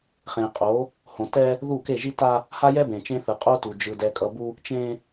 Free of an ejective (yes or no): no